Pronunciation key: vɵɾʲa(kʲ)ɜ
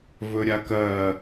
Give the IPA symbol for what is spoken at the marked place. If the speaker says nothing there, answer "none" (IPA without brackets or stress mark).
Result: k